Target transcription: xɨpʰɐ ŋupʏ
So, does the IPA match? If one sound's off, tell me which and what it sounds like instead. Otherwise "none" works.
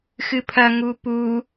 ʏ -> u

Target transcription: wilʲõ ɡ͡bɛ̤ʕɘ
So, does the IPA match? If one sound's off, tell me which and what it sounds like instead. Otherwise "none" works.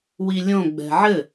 none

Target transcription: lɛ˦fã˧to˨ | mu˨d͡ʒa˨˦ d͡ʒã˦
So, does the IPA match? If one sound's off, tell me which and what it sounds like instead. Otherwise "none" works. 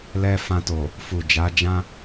m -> f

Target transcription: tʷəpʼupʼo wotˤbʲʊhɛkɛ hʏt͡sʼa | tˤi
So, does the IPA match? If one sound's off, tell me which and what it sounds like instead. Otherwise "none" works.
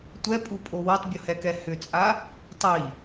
ə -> ɛ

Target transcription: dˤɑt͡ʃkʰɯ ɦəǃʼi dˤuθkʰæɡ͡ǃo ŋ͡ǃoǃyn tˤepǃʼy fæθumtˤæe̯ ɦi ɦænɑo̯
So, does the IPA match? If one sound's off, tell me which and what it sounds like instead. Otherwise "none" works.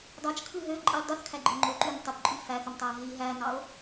ə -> ø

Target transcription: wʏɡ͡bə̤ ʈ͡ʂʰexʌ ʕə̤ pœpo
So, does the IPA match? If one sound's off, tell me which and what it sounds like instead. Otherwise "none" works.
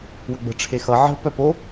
none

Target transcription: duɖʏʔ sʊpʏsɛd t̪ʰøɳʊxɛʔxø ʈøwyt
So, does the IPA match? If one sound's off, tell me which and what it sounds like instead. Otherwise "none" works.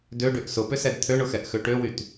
u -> ø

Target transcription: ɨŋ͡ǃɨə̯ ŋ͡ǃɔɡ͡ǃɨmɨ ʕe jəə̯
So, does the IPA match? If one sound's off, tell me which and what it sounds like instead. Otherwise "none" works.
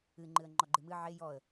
ə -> ɔ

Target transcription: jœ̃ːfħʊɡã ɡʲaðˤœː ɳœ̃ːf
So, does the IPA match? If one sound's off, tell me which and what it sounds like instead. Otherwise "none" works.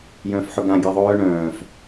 none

